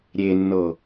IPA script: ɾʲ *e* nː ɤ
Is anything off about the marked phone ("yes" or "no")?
no